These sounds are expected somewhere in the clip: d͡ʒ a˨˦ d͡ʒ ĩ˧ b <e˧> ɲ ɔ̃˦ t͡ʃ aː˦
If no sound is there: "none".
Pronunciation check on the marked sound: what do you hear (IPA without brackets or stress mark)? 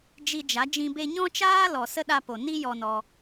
e˧